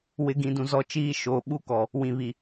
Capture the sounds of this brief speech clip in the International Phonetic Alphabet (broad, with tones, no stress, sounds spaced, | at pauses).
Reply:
w ɪ˨˦ ɡ ĩ˨ d ũ˨ z ɔ˨˦ t͡ʃ iː˦ ʃ o˨˦ ɓ u˦ k ɔ˨ | w ĩ˨ β i˨